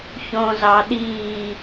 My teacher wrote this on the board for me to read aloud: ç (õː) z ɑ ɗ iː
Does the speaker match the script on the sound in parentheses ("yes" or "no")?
yes